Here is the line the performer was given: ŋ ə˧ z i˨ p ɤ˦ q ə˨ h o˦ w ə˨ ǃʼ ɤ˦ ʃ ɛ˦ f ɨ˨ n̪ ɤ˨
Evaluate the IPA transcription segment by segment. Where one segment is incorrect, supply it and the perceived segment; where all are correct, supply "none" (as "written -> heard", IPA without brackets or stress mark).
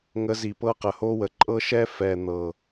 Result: ɨ˨ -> ɛ˨